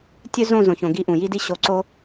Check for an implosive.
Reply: absent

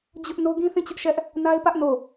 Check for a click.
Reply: absent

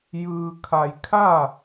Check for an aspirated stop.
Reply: present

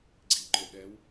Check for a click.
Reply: present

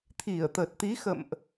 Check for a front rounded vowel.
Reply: absent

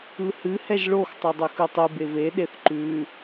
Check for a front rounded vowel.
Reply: present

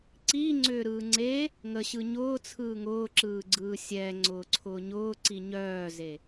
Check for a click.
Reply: present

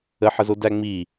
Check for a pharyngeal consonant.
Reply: present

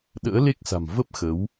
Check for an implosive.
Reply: present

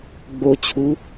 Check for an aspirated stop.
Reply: present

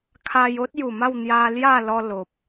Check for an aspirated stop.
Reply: present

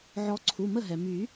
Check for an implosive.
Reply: absent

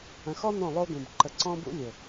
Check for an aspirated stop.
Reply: absent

